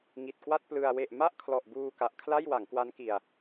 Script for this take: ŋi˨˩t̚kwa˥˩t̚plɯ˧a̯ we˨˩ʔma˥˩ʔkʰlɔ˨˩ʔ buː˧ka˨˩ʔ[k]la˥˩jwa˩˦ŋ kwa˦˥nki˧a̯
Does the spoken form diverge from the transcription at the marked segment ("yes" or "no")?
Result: yes